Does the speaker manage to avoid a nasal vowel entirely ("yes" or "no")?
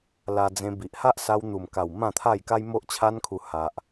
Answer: no